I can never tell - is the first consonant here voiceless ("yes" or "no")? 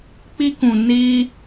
yes